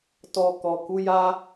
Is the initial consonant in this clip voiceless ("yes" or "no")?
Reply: yes